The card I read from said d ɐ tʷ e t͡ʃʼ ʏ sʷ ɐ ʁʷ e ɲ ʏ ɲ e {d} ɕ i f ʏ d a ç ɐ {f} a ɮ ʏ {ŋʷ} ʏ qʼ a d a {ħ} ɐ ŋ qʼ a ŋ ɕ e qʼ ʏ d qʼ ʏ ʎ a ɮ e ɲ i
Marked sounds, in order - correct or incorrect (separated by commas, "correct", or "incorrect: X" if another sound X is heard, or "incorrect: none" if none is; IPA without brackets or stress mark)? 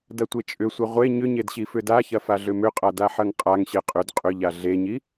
correct, correct, incorrect: m, correct